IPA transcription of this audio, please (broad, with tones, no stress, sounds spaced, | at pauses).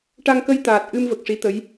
ʈ a˧ ŋ k ə˧ j t̪ aː˨˩ t̚ ʔ ɨ˧ m v ə˨˩ k̚ ʂ i˧˥ t̪ ə˧˥ j